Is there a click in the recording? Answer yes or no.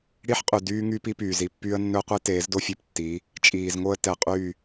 no